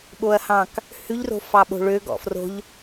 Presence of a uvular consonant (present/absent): absent